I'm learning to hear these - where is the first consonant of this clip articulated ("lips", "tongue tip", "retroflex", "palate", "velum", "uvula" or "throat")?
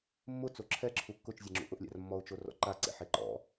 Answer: lips